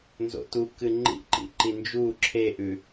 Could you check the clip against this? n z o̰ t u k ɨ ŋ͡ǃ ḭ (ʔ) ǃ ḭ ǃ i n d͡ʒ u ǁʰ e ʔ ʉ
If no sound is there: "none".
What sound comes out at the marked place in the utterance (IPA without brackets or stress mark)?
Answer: ʔ